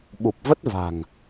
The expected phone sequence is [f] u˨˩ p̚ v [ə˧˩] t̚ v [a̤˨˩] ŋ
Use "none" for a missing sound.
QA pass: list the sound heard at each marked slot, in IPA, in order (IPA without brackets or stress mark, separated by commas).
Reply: ɓ, ə˦˥, a̤˨˩